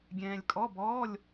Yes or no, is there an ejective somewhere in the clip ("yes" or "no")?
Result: yes